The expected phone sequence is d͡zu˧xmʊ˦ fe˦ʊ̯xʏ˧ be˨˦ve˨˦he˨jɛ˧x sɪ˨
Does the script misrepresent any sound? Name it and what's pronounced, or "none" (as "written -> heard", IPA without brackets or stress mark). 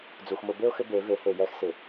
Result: f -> b